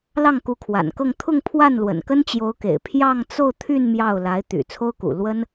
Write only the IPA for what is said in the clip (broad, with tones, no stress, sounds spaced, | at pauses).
l ɑ˥˩ ŋ k u˧˥ kʰ w a̰˨˩ n k ɤ˥˧ ŋ t̪ʰ ʊ˥˧ ŋ pʰ w a˥˩ n l w ə̰˨˩ n k ə˥ n t͡ɕ j o˧˥ ʊ̯ k ḛ˨˩ ɪ̯ pʰ j ɑ˥˧ ŋ t͡s o˥˧ ʊ̯ t̪ʰ y˥˧ n m j ɑ˥˩ ʊ̯ l a˧˥ ɪ̯ t̪ y̰˨˩ t͡sʰ o˥ ʊ̯ k ṵ˨˩ l w ə˥ n